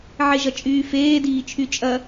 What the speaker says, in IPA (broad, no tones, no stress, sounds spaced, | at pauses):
ʕ e ʒ ɐ t͡ʃʼ yː f eː d iː t͡ʃʰ y t͡ʃʼ ɐ